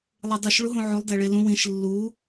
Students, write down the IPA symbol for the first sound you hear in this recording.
lˠ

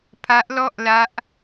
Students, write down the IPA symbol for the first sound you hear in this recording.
pʰ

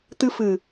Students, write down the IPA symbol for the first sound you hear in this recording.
t̪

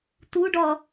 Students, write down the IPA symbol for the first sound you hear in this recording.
t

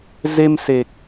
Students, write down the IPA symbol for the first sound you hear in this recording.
z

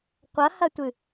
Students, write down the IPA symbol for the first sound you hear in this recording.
qʷ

